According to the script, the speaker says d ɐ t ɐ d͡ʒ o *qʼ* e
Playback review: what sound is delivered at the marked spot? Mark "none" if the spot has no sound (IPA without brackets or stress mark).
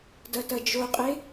qʼ